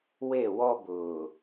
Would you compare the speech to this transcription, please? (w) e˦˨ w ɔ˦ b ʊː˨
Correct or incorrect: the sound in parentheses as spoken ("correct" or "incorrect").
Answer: correct